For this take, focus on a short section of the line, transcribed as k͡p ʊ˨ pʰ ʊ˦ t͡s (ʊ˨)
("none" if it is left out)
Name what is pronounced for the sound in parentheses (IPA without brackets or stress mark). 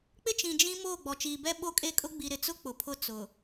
ʊ˨